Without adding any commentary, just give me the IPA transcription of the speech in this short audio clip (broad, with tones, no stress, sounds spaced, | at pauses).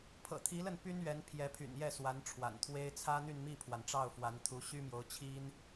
pʰ ɤ̰˨˩ t̪ʰ i˧˥ l ə˥˩ n p y˥ n ɥ ɛ˧˥ n pʰ j ɛ˧˥ pʰ y̰˨˩ n j ɛ˥˩ s w a˧˥ n ʈ͡ʂʰ w a̰˨˩ n t̪ʰ w e˥ ɪ̯ t͡sʰ ä˥ n̪ y˥˧ n m i˥˩ pʰ w a˩ n ʈ͡ʂ ɑ˥˩ ʊ̯ f w a˧˥ n t̪ʰ u˧˥ ɕ y˥ m j o˧˥ ʊ̯ t͡ɕʰ i˥ n